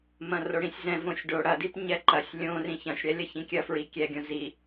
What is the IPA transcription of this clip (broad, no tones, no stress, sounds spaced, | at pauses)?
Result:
m ɐ̃ r o ɽ ĩ sʲ z ɛ̃ v õ sʲ ɖ o ɽ ɐ d i p ɲ ɛ ǃ ɐ sʲ lʲ õ r ĩ ç ɐ̃ sʲ ɽ ɛ lʲ ɐ ç ĩ kʲ ɐ f ɹ i kʲ ɛ ɡʲ õ z i